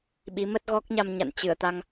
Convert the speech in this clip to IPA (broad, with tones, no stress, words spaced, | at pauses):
ɓi˨˦ mə˦˥t̚ɣɔ˦˥k̚ɲa˧mɲa̰˧˨n t͡ɕɨ˧˩ə̯t̪a˧ŋ